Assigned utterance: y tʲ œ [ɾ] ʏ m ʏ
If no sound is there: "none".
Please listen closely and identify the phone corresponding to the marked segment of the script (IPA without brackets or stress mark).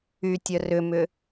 r